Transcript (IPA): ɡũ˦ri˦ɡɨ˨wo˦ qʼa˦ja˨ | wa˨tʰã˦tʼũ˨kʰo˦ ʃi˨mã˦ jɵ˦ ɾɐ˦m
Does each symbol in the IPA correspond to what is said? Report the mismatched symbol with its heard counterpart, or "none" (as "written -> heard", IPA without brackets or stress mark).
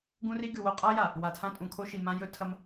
ɾ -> tʰ